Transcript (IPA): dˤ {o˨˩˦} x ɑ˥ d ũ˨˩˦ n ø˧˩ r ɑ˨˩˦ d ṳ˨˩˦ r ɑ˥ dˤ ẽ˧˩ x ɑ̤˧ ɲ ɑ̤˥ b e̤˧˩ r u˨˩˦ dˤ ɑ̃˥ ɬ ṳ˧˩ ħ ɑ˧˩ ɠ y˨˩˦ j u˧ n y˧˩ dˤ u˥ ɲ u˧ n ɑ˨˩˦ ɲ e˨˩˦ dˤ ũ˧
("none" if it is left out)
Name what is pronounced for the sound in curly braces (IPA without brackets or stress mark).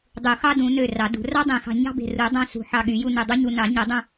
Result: u˨˩˦